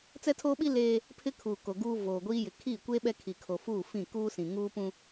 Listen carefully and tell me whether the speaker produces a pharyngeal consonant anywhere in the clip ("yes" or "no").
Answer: no